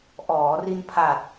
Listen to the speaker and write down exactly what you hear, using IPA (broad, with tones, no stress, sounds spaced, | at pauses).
ʔ ɔː˩˦ r i˧ n pʰ a˨˩ t̚